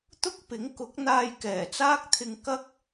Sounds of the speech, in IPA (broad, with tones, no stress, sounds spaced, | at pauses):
t̪ ʊ˥ k̚ p ɪ˨˥ ŋ k ʊ˨˥ k̚ n̪ aː˧ j k ɛː˨˩ t͡s aː˥ k̚ t̪ʰ ɪ˧ ŋ k ɐ˥ k̚